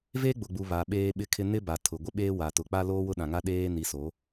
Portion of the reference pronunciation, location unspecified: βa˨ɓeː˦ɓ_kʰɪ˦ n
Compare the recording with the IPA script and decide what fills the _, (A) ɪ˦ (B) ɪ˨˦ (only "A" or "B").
A